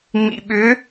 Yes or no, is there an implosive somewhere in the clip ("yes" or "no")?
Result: yes